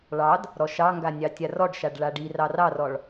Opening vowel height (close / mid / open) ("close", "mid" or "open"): open